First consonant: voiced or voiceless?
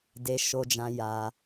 voiced